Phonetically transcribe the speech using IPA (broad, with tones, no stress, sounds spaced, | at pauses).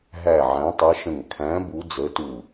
ɦ æ˧˩ ʕ æ̃˨˦ tˤ ɜ˨˦ ʃ ə̃˧˩ ŋ kʰ æ̃˨˦ b u˨˦ d͡z ə˨˦ t u˧˩